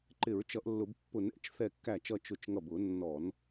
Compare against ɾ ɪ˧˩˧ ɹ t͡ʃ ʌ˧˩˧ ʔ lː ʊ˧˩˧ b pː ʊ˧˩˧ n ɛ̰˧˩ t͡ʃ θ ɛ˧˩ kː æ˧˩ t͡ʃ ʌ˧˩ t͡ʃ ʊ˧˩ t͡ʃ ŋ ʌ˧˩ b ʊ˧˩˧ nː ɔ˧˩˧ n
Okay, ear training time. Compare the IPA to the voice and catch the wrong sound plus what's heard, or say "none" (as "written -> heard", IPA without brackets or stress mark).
ɾ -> ǃ